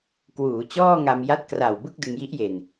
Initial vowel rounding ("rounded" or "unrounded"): rounded